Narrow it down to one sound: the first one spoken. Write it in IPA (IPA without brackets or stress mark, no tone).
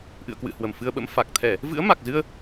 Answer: ʔ